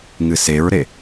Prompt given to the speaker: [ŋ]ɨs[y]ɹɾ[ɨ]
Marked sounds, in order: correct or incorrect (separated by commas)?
correct, incorrect, incorrect